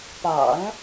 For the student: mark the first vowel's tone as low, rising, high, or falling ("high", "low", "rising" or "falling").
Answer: low